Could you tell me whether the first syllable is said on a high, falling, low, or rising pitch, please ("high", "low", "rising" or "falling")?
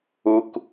low